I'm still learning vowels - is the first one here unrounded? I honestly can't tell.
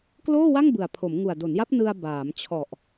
no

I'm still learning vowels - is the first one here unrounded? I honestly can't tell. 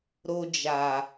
no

